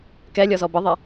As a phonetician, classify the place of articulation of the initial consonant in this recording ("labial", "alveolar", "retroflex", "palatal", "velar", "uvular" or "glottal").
velar